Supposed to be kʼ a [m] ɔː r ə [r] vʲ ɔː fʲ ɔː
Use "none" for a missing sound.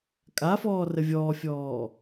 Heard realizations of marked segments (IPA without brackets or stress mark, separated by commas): f, none